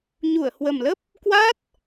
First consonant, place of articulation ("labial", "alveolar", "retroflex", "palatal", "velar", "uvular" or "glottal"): palatal